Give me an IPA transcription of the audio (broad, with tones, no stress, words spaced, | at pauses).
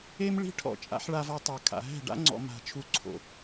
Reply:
e˦mɭi̤˦ ʈʰɔ̰˦˨t͡ʃʼa̰˦ħ ɭa˧vɔ˧tˤa˨ kʰa̰˨ɦɛ̤˦˨ɖa̰˦ŋ͡ǀɔ̰˧ ma̤˧ t͡ʃʰu˨ǀʰo̰˨